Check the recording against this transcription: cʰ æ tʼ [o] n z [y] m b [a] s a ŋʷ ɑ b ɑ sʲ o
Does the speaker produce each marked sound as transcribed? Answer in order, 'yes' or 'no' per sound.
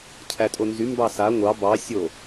yes, yes, no

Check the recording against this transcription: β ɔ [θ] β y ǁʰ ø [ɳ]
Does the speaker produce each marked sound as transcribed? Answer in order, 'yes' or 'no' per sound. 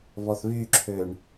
yes, yes

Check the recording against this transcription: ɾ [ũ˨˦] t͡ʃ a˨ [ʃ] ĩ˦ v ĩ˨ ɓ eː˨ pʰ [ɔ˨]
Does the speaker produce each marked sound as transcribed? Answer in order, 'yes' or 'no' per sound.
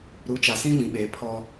no, no, no

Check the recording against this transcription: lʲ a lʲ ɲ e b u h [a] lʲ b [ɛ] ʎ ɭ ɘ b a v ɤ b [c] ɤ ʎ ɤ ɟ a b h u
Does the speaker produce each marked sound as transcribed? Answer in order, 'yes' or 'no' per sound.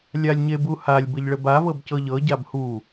yes, no, yes

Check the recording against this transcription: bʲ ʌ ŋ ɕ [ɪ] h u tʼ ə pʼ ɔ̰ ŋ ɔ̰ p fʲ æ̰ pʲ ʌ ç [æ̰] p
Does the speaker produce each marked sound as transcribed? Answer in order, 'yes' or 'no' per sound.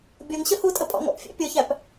no, no

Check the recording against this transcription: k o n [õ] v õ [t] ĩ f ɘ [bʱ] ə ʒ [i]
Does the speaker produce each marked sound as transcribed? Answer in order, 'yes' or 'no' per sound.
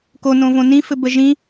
yes, no, no, no

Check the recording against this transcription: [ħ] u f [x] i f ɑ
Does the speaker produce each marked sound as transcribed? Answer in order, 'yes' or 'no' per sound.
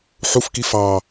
yes, no

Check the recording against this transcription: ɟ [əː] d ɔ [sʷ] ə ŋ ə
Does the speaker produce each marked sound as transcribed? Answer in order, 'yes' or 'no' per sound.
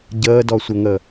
yes, yes

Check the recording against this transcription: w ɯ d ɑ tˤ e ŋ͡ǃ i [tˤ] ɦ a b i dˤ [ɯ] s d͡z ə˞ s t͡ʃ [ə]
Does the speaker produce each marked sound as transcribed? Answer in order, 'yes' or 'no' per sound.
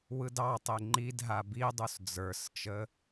no, no, yes

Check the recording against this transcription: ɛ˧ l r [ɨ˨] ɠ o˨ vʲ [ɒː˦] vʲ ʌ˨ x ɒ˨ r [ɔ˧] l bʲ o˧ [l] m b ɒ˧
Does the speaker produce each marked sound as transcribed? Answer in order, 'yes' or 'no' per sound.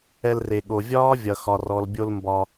no, yes, no, yes

